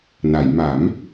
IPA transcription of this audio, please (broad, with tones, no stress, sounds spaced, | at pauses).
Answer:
n a˩˦ j m a˩˦ m